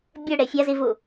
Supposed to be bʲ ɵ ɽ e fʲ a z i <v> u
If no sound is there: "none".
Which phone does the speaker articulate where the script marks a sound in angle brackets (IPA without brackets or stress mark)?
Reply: v